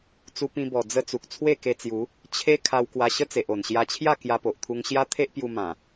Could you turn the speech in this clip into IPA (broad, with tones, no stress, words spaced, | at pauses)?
t͡su˧ pĩ˧bɔ˨˩ d͡zə˧ t͡su˨k̚t͡sʰwe˥˧ke˧t͡sju˨˦ | t͡ɕʰe˦ kʰa˧wkwa˧ɕə˦ t͡se˨ʔo˨˩nɕja˧t͡ɕʰja˥˧ kja˧po˨ʔt̪ʰu˧ŋɕja˦ t̪ʰe˦ʔ pju˧mã˨˩